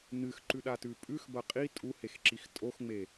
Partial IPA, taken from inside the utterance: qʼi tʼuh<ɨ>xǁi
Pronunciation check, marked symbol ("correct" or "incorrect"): incorrect